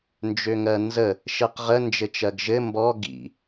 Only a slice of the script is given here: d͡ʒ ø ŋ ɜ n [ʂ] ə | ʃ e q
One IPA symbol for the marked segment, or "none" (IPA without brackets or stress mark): z